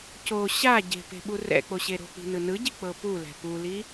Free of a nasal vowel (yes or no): yes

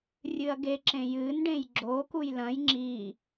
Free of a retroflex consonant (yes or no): no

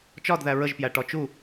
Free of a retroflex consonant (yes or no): no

